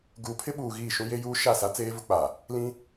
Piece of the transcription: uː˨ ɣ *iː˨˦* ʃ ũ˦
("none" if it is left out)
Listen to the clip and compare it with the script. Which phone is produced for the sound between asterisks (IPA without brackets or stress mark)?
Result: iː˦˨